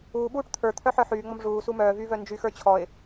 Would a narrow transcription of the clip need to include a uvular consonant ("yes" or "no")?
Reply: no